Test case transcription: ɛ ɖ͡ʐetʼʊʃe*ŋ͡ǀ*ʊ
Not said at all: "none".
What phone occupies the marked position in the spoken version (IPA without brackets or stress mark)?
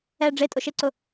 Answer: ǀ